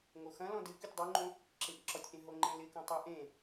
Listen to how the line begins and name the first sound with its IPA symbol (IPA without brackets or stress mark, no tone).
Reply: ŋ